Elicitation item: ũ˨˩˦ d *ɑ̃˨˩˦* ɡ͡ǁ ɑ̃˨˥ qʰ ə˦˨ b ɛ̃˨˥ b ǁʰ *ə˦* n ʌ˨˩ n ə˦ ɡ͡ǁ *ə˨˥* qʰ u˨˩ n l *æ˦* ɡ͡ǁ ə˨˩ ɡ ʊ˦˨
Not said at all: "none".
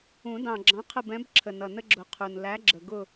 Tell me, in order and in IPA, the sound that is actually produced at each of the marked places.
ɑ̃˨˩, ə˨˩, ʊ˨˥, æ˨˥

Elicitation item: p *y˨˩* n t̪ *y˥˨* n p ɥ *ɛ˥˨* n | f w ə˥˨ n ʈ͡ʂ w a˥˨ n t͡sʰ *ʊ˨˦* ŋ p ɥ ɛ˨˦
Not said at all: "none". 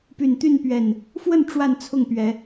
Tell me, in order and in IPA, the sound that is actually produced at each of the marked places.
y˨˩, y˥˨, ɛ˨˩, ʊ˥˨

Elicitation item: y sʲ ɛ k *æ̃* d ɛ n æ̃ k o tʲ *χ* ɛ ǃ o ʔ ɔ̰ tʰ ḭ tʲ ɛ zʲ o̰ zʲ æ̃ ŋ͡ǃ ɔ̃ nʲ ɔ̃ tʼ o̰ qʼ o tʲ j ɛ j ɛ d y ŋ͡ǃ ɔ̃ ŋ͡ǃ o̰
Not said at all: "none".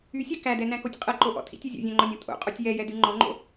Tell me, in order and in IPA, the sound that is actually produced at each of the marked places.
æ, qʼ

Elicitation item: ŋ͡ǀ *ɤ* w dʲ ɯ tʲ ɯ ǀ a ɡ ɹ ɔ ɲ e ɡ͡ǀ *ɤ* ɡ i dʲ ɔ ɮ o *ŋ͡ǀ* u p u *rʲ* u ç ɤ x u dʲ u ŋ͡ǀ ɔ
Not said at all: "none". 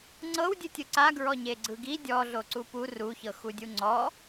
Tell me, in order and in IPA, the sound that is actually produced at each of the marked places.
ɤ, ɯ, ǀ, r

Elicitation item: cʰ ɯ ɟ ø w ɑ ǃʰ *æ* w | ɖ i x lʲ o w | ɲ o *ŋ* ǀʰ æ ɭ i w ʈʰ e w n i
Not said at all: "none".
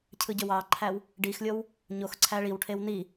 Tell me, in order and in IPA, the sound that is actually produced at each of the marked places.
æ, x

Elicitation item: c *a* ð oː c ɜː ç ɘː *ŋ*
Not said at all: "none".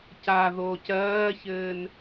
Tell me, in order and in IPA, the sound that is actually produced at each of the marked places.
a, n

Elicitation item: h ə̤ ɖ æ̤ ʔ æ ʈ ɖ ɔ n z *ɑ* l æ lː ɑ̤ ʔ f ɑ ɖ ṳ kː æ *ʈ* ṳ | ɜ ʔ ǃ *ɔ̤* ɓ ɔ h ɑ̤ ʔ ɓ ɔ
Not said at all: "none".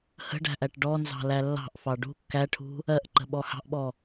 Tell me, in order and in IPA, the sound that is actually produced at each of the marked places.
ɑ̤, ʈʰ, ə̤

